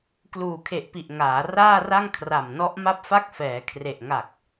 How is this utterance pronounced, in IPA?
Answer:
kluː˨˩kʰe˨˩ʔpi˨˩ʔ ŋaː˩˦raː˥˩ra˥˩ŋ kʰra˨˩mnɔ˦˥ʔ ma˥˩p̚fa˥˩k̚fɛː˩˦ kʰre˨˩ʔŋa˨˩k̚

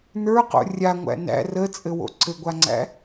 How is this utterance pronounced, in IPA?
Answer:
nə˞qo̰ rʲaŋʷæ̰ næ̰ rət͡sʼɘwo̰ ǀɘɡʷaŋ͡ǀæ̰

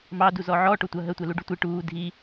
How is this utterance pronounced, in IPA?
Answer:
mɑ duzɔʕɔ ʈotʷɐ ɦə tʷɛluɖutʷi ʈuː dʱi

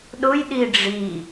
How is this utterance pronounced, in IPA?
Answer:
ɗʊjɗi ɖ͡ʐi

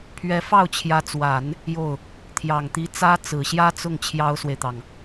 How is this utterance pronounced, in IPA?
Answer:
pʰɥɛ˥ fɑ˥˩ʊ̯t͡ɕʰjä˧˥t͡swa˨˩˦n | jo˥˩ʊ̯ | t̪ʰjɑ˨˩ŋt̪i˧˥ t͡sä˥t͡sɹ̩˨˩ɕjä˥t͡sʊ˥˩ŋ t͡ɕʰjɑ˥ʊ̯swe˨ɪ̯t̪ɑ˩ŋ

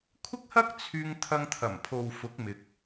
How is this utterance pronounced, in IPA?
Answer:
kʷʰɪ˥k̚hɐ˥k̚ t͡sʰyː˥ŋ t̪ʰɐ˧ŋt̪ʰɐ˨˩m pʰo˨wfʊ˨˥k̚ mɪ˧k̚

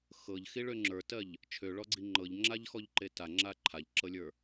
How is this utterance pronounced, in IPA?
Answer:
xɤʎxiɭø ŋ͡ǁə˞tɜʎ | t͡ʃʰøɭɔɡ͡ǀi ŋ͡ǃɤʎŋ͡ǁaʎxɔʎǃe taŋ͡ǁa ǃʰaʎǁɤlʲə˞

